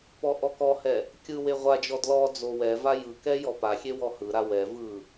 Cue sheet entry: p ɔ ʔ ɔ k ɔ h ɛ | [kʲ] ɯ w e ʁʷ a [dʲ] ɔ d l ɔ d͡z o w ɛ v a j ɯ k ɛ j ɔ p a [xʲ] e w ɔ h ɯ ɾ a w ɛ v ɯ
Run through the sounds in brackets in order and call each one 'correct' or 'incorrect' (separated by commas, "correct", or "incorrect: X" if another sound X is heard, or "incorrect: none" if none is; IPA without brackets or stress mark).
correct, incorrect: d͡ʒ, correct